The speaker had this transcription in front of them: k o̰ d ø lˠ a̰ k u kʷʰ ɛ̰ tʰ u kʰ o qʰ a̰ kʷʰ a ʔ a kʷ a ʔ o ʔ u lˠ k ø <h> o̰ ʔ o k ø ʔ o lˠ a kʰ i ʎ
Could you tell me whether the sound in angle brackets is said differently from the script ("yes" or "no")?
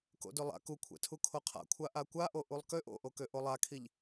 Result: yes